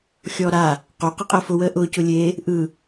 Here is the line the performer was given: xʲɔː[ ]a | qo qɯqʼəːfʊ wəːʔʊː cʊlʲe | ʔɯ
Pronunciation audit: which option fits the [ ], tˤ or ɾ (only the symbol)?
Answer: ɾ